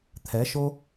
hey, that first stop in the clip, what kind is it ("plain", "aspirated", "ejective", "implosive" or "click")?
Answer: aspirated